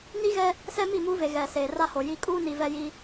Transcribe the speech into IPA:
n i˦ ɣ ɛ˦ | s ɛ˦ m i˦˨ m uː˦ v e˨ ɣ ɛ˨ s eː˨ r a˦ h o˨ j i˦ kʼ uː˦ n i˨ v ɛ˦ j i˦

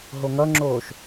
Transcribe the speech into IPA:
ɦ o ŋ ʌ ŋ͡ǁ oː ʃ

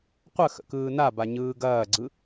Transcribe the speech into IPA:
qʷ ə x ə̰ k ɯː n a b a ɲ ɯː ɡ ɐː ɡ͡ǀ ɯ

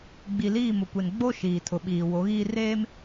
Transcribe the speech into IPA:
ɡ͡b i˨ l iː˦˨ m ʊ˨ kʷ e˨ n ɡ͡b o˦ ʃ iː˨ tʰ ʊ˨ ɓ iː˨ w o˨˦ ɣ iː˦ r eː˦ m

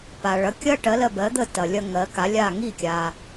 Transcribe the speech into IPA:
p a˩ ɭ ɐ˩˥ kʲ ɐ˥ ʈ ɜ˩˥ l ɜ˧ b ɜ˩˥ d̪ ə˥˩ t ɐ˩ lʲ ɐ˧ ŋ ɜ˩˥ k a˩˥ lʲ a˥˩ ŋ i˥˩ kʲ a˩

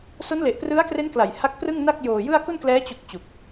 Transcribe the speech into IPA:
s o˦˥ n l e˨˩ ʔ p r ɯ˦˥ a̯ k r e˦˥ n k l a˨˩ j h a˦˥ k̚ p r ɯ˥˩ ŋ n a˥˩ k̚ j oː˨˩ j ɯ˥˩ a̯ k u˥˩ n k l ɛː˦˥ t͡ɕ u˨˩ k̚ t͡ɕ u˨˩ k̚

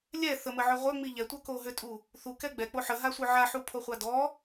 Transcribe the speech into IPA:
lʲ ɛ θ ə m ə ʕ œ ʁʷ œ ŋ͡m i ʎ ɛ tʷ œ k o ɦ ø tʼ u | θ u k ɛ ɡ͡b ɛ k͡p o ħ ə ɦ a sʷ œ ʕ a ħ u pʰ o χʷ a d ɔ

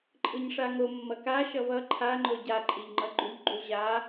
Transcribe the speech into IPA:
ǃʼ ɯ ɲ ʂ a ŋ o mː ʌ k a ʃ ʌ v ʌ ǃʰ a ŋ͡ǃ o ɟ a ǃʼ i ʎ ŋ͡ǃ ʌ ɡ͡ǃ u ʎ ɡ͡ǃ u ʑ a

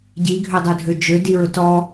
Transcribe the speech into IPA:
ɟ i ɡʱ ø dˤ ʊ dʱ ø d͡ʒ ø d i ɹ ʊ t ɔ

